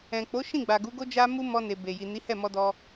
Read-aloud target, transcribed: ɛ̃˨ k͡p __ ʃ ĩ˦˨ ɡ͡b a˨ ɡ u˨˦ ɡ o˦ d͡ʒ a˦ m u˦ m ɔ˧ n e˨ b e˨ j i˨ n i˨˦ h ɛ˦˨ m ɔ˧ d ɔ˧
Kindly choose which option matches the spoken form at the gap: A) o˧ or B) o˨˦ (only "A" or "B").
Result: B